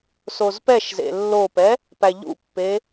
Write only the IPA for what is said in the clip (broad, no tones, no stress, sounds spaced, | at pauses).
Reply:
s o z p ɛ ʃ z ḛ lː o p ɛ | p æ ʎ ṵ pː e